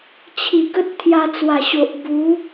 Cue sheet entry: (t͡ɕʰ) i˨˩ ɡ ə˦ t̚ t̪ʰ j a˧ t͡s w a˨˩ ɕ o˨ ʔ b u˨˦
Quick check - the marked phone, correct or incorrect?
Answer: correct